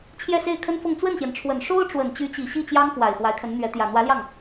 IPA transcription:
t͡ɕʰjɛ˥˧se˥˩ɪ̯kʰə˥nfɤ˥˧ŋ t͡swə˥˩nɕjɛ˩nʈ͡ʂʰwə˨˩n ʂo˥ʊ̯ʈ͡ʂwə˨˩n t͡ɕy˧˥t͡ɕi˨˩ ɕi˥˩t͡ɕjɑ˥ŋfwa˨˩ɪ̯ xwa˧˥ɪ̯kʰə˧˥nn̪ɥɛ˧˥ t̪jä˨˩ n̪wä˧˥ljɑ˥˩ŋ

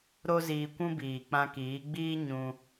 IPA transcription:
ɾo˦ziː˧kʷũ˦biː˨ k͡pã˧kiː˨˦ɡ͡biː˦ ɲũ˧

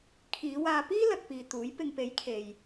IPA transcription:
kʰiː˨˧waː˧ piː˥ lɐ˧k̚piː˨t̪uː˨˥j pɪ˨ŋpe˨˥j kʰe˨j

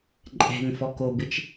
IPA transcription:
ǃʼɛ̤ŋfɔkobɪt͡ʃ

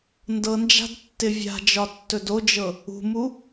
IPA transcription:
ndɤnd͡ʒa̤d tːɪvʲa̤d͡ʒɒ tːɵdod͡ʒɤ | ṳmu

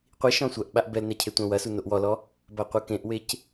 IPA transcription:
qʷi ʃɔ̃sʷɐʔɓaʔ bɛlnɛ cʰetʷɐ̃wɐsu noʔwɔlɔ | baqʷɨkẽʔwec

